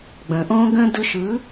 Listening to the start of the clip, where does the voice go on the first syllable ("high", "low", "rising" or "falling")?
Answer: low